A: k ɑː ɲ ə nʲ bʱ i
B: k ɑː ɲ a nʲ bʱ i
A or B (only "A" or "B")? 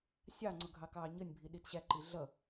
A